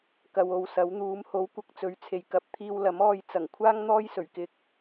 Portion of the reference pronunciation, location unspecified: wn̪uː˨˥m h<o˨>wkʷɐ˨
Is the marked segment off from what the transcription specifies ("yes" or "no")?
yes